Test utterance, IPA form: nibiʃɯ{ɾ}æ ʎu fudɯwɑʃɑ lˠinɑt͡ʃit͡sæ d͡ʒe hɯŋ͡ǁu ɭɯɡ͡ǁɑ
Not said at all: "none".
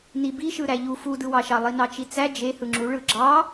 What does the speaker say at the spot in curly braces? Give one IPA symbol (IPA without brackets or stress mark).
ɾ